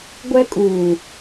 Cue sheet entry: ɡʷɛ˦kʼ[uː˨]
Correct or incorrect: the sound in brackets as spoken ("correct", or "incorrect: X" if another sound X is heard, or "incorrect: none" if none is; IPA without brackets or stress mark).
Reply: correct